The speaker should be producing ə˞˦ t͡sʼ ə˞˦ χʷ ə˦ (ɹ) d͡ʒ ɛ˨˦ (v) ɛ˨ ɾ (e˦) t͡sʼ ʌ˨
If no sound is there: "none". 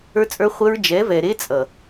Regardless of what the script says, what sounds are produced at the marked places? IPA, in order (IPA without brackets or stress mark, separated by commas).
ɹ, v, e˦